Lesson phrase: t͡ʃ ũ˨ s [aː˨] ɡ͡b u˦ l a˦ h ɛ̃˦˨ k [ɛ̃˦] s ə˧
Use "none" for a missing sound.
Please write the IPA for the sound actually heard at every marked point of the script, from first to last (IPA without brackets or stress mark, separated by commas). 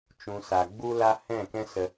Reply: a˨, ɛ̃˦